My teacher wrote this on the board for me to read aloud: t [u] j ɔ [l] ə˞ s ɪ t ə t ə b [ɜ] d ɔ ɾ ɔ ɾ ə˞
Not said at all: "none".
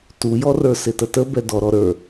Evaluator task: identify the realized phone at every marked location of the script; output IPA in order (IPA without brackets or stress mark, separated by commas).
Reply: u, r, ɛ